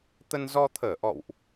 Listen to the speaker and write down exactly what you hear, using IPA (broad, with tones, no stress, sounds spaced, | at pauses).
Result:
t̪ ə˧ n z ɔ˧ t̪ʰ əː˧˩ ʔ ɔ̰˧˨ w ʔ